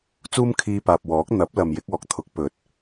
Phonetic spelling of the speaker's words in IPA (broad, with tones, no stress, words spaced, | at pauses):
t͡suː˥m kʰiː˧paː˨p̚ wɔː˨˥k̚n̪ɐ˨˥p̚lɐ˨m jɪ˨˥k̚ɔː˨k̚ t̪ʰʊ˨˥k̚pɵ˨˥t̚